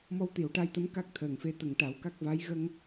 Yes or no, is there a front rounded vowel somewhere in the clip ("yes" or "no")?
no